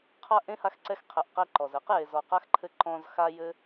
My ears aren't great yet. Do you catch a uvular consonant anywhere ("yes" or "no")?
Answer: yes